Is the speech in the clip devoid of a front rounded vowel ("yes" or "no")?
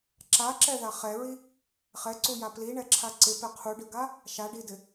yes